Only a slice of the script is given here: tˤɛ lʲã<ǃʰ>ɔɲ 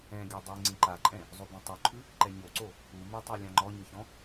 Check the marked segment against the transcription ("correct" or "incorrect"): incorrect